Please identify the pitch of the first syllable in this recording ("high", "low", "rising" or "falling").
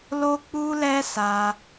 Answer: high